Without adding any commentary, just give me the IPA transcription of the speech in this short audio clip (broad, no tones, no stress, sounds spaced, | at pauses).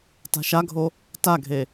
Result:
t a̤ ʃ a ɡʱ o | t a ɡʱ e